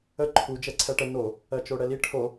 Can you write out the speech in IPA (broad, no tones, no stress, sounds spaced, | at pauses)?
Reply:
ə ǃʰ u d͡ʒ ɛ ǀʰ ɛ ʈ ə n o | ɜ t͡ʃ o ɽ ɛ l i ʈʰ o